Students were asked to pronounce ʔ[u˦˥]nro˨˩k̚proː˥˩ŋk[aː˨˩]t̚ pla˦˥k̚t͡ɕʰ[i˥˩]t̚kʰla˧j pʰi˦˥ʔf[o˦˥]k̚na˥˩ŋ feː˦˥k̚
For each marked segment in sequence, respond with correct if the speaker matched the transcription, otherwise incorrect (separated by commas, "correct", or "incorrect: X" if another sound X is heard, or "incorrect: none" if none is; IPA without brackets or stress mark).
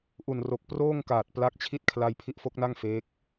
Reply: incorrect: u˨˩, correct, correct, correct